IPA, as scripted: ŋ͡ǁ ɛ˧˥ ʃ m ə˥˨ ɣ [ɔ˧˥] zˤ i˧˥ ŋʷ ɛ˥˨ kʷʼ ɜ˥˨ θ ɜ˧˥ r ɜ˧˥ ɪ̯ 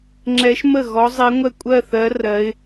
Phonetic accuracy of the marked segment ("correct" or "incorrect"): correct